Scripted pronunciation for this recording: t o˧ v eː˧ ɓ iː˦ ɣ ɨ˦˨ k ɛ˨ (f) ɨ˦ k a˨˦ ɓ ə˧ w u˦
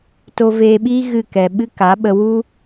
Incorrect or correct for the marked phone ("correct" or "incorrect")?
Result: incorrect